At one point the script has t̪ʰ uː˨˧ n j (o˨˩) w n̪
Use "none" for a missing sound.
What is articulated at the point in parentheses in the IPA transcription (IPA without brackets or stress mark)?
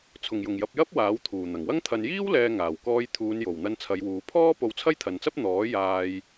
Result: o˨˩